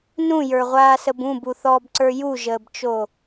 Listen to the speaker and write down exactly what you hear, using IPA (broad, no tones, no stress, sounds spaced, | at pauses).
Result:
n ũ j ə˞ ʁʷ aː s ə b ũ b u θ ɔː b ǀ ə˞ j u ʒ əː b t͡ʃ o